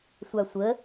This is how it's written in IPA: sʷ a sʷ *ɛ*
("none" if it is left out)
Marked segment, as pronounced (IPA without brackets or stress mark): ə